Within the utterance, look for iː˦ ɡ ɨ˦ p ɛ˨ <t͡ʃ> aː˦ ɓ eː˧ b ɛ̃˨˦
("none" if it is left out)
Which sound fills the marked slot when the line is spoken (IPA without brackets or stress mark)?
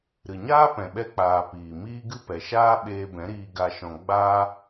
ʃ